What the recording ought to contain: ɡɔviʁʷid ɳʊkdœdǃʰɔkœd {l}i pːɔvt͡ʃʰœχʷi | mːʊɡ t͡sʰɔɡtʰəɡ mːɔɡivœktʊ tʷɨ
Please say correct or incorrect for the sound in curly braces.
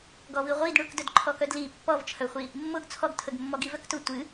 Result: correct